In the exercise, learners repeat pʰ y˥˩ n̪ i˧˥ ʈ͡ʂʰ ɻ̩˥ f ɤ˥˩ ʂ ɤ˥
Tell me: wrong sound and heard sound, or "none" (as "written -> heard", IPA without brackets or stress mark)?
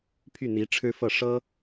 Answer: none